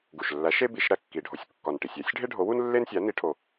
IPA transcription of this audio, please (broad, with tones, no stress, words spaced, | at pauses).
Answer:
ɡu˨˩ʃlːæ˨˥ʃe˥ bi˨˩˦ʃɾæ˥ kːi˨˩ɖʱo˨˥sʲ kːɒ˨˩nʈi˨˩ sʲæ˨˩˦sʲɖʱe˥ɖʱo˨˥wu˥n lːe˥nsʲæ˨˥ni˨˩˦ʈʰo˨˩